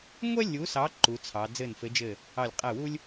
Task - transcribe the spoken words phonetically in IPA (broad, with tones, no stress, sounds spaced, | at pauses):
ŋʷ ɛ˥ lʲ u˨˦ s ɑ˨˦ ǃ u˨˦ t͡sʰ ɑ˨˦ d͡z ɘ˧˩ n f ɘ˨˦ d͡ʒ ɘ˧˩ | ɑ˧˩ lʲ qʼ ɛ˧˩ w u˥ lʲ